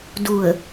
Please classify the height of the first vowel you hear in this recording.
high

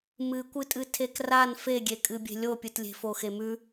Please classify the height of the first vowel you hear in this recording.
high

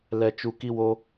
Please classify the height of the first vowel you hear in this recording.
mid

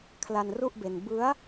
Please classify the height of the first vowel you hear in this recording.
low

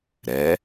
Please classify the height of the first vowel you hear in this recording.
mid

